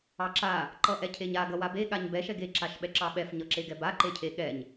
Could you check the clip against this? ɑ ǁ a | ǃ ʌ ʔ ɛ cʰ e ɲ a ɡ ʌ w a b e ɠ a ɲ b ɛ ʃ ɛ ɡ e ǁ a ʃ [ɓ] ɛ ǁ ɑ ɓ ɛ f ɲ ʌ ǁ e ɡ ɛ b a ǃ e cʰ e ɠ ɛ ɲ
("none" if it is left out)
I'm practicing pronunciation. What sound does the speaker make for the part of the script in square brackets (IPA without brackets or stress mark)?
ɓ